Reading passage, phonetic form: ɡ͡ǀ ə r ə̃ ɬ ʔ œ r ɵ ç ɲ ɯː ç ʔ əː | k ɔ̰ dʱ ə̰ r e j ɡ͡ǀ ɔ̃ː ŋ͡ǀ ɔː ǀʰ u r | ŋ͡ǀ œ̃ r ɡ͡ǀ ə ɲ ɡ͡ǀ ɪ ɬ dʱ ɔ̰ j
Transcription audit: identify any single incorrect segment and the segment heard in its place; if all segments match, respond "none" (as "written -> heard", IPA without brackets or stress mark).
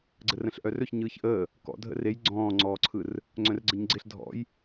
u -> ɯ